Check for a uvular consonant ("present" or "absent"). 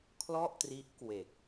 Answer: absent